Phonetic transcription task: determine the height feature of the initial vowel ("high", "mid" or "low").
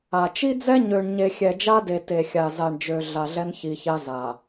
low